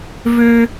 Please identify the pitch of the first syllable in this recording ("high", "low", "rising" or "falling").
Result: high